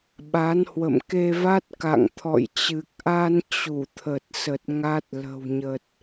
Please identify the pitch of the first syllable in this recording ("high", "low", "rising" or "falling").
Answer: rising